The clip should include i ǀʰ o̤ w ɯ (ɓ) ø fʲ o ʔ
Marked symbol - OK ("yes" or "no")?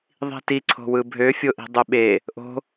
no